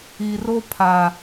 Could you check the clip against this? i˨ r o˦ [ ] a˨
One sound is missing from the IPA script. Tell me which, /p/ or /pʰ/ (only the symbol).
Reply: pʰ